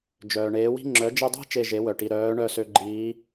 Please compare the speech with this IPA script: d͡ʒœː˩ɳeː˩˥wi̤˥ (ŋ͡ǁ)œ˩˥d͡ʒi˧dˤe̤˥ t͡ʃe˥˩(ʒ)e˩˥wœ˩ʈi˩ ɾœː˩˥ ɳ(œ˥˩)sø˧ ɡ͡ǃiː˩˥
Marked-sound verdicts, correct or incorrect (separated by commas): correct, correct, correct